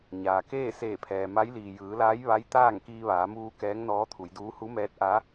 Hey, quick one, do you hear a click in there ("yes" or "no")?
no